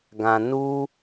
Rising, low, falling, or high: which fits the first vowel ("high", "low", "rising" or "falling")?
low